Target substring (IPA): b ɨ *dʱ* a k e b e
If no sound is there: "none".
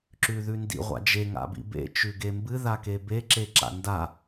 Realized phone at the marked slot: ð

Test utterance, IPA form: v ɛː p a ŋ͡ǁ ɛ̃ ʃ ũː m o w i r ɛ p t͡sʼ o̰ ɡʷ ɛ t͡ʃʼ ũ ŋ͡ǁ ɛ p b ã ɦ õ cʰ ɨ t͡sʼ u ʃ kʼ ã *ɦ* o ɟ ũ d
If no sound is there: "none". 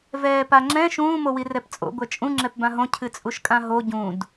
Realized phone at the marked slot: ɦ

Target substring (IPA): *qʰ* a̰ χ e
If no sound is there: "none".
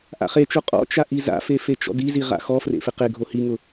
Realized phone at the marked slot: ʔ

